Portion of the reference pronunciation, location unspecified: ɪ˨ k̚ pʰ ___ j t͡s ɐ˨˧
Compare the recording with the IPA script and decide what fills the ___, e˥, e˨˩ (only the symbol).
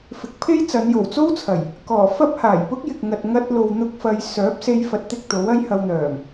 e˥